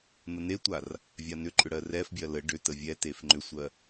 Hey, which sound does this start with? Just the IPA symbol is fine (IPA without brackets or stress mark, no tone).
n̪